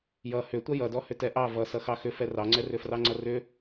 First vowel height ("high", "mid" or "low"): mid